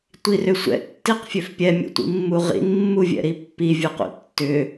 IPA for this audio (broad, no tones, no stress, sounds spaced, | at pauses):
tʷ i r ʏ sʷ ɛ̰ tː i q fʲ ø f pʲ ɛ mʲ ṵ tʷ ḭ mː u ʁ ḭ n mː u vʲ ɛ̰ ɾ i pː i vʲ u q ṵ tː ʏ